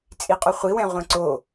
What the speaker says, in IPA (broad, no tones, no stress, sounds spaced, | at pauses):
t͡sʼ i qʼ ʏ χʷ i w ɛ̃ ʁʷ ẽ ǀ o